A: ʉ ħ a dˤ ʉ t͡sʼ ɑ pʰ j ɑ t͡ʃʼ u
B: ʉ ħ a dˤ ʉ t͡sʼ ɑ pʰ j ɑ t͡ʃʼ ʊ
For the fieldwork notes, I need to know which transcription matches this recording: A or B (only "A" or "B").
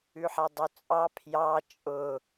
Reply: B